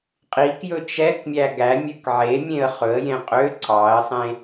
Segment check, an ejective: present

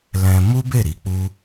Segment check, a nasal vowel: present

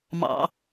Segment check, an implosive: absent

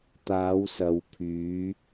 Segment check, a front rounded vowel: present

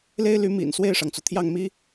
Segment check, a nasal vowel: absent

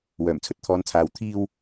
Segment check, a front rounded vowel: present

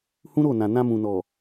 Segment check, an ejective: absent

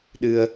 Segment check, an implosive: present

